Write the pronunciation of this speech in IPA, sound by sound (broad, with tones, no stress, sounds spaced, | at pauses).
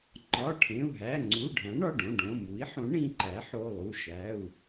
ŋ͡ǃ ɒ˩˧˩ ʈʰ ẽ˩˧˩ u̯ ɦ æ˩˧˩ ŋ͡ǀ u˩˧˩ ɖʱ æ̃˩˥ ɳ ɒ˩˧˩ ɖ õ˩˧˩ ɖ õ˩˧˩ m u˩˥ i̯ ħ õ˩˥ ɳ ĩ˩˧˩ ǃ æ˩˥ ħ o˩˧˩ lˠ u˩˧˩ ʃ æ˩˧˩ u̯